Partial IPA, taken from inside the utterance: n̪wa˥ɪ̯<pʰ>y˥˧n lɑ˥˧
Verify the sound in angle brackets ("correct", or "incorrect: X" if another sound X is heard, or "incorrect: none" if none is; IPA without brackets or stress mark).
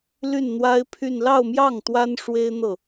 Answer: correct